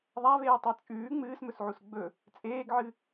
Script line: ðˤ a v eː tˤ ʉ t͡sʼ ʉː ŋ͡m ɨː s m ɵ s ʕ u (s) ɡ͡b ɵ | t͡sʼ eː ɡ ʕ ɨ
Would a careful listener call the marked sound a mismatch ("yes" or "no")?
no